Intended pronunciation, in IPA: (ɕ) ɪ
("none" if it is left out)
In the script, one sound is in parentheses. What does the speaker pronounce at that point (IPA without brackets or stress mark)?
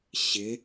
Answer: ɕ